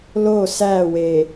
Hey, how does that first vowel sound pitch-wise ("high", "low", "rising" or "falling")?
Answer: falling